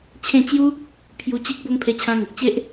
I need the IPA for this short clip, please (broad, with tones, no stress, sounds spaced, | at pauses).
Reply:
t͡ɕʰ ẽ˥˧ t͡ɕ j u˦ | pʰ j u˧ t͡ɕ i˦ k̚ b o˦ ŋ pʰ e˧ t͡ɕʰ ã˧ ŋ ə˨ k̚ t͡ɕ e˦ ʔ